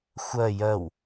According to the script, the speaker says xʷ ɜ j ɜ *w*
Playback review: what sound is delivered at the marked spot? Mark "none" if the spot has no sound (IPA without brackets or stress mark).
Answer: w